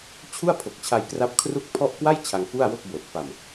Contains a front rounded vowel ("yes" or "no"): no